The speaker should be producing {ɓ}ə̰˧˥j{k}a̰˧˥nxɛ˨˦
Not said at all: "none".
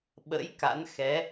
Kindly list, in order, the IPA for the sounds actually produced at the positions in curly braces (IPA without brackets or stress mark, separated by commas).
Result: ɓ, k